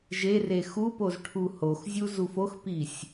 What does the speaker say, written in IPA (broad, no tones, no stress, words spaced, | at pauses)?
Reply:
ʒere xupoz ʈʰuhoxzʲu zufoxpisʲ